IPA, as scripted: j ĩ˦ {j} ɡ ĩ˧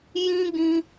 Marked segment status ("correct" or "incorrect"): incorrect